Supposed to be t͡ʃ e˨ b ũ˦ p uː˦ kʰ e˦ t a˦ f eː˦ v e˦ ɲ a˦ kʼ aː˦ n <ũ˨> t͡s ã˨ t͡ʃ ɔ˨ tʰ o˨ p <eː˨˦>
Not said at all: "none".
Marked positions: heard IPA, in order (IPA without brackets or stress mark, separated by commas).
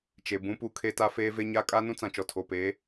ũ˦, eː˨˦